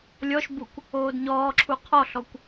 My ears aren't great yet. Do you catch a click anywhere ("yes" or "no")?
yes